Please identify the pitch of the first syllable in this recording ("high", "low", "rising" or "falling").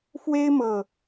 high